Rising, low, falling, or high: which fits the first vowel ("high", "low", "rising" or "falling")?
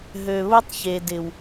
low